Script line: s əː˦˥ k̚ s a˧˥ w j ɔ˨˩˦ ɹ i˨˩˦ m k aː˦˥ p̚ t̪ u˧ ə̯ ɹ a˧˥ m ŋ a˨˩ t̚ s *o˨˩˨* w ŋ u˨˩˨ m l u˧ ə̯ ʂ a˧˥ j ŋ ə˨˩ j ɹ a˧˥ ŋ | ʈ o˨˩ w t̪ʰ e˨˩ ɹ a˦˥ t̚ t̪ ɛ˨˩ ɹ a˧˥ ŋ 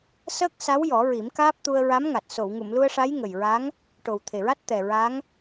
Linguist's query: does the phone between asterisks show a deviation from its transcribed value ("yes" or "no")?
no